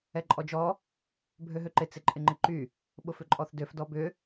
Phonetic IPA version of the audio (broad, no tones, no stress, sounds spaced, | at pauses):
ɛ ǃʼ ɔ d͡ʒ ɔ | bʱ ø ɦ ø ǃ ɪ t͡s ɪ ǃʼ ɪ ŋ͡ǃ ɪ ǃ y | ɓ ʊ f ʏ ǃʼ ɔ θ d ø f d ɔ b ʏ